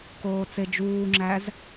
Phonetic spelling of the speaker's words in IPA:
koːt͡sed͡ʒuːŋ͡ǁæz

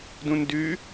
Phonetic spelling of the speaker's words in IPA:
dũndʉ

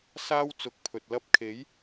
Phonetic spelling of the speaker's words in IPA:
saː˥w t͡sʊ˨˥k̚pʰɵ˨t̚ lɐ˧p̚kʰe˨˥j

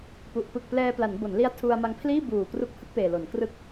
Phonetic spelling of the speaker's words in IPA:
pu˨˩ʔ pɯ˨˩k̚plɛː˧pla˩˦n bo˩˦nli˦˥a̯ tʰu˧a̯ ma˧ŋpʰliː˥˩ buː˨˩kru˦˥k̚ hɯ˥˩k̚peː˨˩lo˩˦nkrɯ˥˩k̚

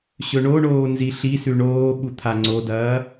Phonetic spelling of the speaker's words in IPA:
ɕɵɳoɳoː nziɬisʉ ɳoːɓu t̪ʰaŋ͡ǀodɐː

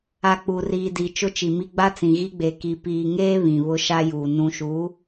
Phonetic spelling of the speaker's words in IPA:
a˨ k͡pu˨riː˨di˨ t͡ʃʊ˦t͡ʃi˨mi˦ ɡ͡ba˦t͡sĩ˨ ɣi˦ɡ͡be˨ ki˨ piː˨ŋeː˦ βĩ˨βʊ˦ʃa˦juː˨ nũ˨ʃuː˨˦

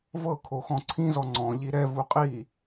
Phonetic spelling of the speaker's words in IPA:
vɤkʰo xɔ̃ǀʰĩzɔ ŋ͡ǀɔ̃ʎi ɾɛvu qʼi

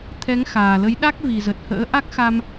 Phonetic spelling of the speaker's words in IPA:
t̪ʰɛ˨˦ŋxaː˨˩lə˨˦jɗa˦˥k̚ vi˨˩zə˨˩t̚hə̰ː˧˥ ʔa˦˥k̚xa˧m

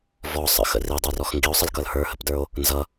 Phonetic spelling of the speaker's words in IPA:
vɔsˤə̰xə̰ ridˤə˞rɔx ŋɡio̯sˤəlkʌl hə˞hə̰pdə˞o̯ | nzʌ

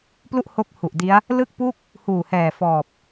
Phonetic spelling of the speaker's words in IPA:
plu˥˩ʔho˦˥k̚ hu˨˩ʔdi˦˥a̯ | lɯ˥˩k̚pu˥˩k̚ | huː˨˩hɛː˨˩ fɔː˨˩p̚

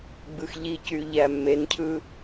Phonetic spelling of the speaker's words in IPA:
ɡ͡bɯxʎicy ʎæmːencʰɯ

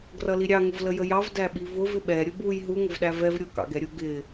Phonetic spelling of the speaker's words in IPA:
ɡrʌliɾʲɑ ŋʊvləjəjɑv dæɓivʊv ɪɓɛ ɾʲʊbuj ɦu ŋəvɗævɛv ɾʲʊ kɑ̰ɡɛɾʲʊ ɡɪ

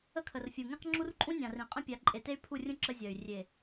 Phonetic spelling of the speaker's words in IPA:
ə˦kʰə˨rfʲu˨ ŋẽ˦qŋ͡ǁu˦rǃʼũ˦ nʲã˨r ĩ˨ qʼə̃˦pʲa˨˦ǃʼe˨ te˦y̯pʰu˦˨rʲũ˦ ǁə˦zʲɜ˨y̯ rʲe˨

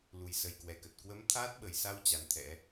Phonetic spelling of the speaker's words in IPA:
lu˨˩jsə˨˩jkwɛ˨˩kə˨˩t̚ kwə˨˦m t̪ʰaː˦˥t̚ɓə˨˩jsa˧w t͡ɕa˨˦nt̪ʰɛ̰˧˥

